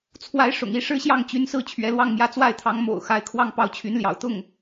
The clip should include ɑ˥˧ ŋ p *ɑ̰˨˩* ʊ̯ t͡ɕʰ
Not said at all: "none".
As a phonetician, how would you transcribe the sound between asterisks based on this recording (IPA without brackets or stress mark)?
ɑ˥˩